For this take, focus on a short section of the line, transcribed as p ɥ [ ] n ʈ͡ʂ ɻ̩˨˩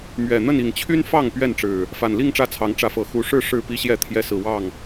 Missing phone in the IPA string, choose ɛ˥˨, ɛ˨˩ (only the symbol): ɛ˥˨